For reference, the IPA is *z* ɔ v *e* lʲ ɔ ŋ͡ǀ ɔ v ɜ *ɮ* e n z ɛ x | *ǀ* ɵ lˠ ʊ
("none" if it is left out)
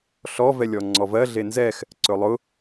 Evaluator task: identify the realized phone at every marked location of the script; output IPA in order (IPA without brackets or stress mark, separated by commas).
ɬ, ɛ, ɮ, ǀ